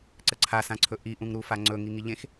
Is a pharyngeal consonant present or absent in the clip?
absent